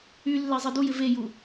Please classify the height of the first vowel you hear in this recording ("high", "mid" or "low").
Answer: high